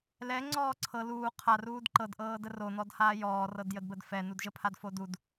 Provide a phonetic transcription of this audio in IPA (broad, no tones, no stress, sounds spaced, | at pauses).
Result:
l ɛ ŋ͡ǀ ɔː ǀʰ ɤ l uː qʰ a r uː d ǃ ɤ d ʔ ɤː d ə r o n ɔ d h aː j ɔː r ɤ d j ə d b ə d f ɛ n u d ʒ ə pʰ a d f o d u d